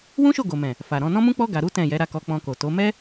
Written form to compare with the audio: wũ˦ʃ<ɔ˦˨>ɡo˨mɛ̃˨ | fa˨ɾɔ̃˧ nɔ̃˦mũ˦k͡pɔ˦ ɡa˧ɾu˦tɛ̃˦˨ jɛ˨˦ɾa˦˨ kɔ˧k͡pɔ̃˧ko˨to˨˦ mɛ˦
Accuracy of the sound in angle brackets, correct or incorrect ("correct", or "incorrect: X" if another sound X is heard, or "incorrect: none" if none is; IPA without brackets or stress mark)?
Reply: incorrect: o˦˨